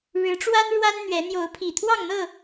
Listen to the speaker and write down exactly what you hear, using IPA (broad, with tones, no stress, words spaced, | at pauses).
ɻɻ̩˨˦ʈ͡ʂwa˦n ɻwa˦nn̪ɥɛ˨˦ n̪jo˨˦ʊ̯pʰi˨˩t̪ʰwɑ˥˨ŋn̪ɤ˥˨